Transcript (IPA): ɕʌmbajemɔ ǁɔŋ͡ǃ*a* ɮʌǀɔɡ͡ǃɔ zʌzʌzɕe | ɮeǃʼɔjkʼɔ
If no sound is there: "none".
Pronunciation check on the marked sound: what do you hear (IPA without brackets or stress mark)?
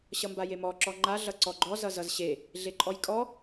a